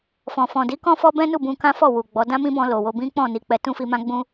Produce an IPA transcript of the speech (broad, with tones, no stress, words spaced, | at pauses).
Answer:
fɔ̃˨fɔ̃˨di˨˦ kɔ̃˦fɔ˦bɛ̃˦nu˦˨ bũ˧ kã˦fɔ˦˨ wu˨ɡ͡bɔ˨˦ dã˦mĩ˦bɔ̃˧ lo˨wo˧bĩ˦ k͡pɔ̃˦˨ ni˨˦ k͡pɛ˧ tũ˦fi˧mã˦ɡ͡bũ˦